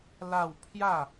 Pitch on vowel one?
falling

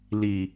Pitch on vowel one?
low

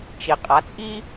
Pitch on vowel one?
low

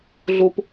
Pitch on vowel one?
low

